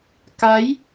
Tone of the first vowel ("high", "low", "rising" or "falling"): rising